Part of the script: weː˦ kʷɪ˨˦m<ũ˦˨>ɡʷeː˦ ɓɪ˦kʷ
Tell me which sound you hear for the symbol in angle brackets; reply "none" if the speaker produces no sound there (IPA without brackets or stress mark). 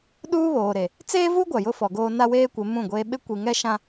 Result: ũ˦˨